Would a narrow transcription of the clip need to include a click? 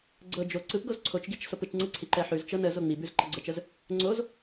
yes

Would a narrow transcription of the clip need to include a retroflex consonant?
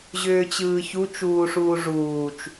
yes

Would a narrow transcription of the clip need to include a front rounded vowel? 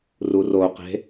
no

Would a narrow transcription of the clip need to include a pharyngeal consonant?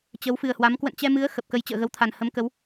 no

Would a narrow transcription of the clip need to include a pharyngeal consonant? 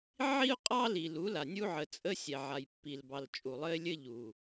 yes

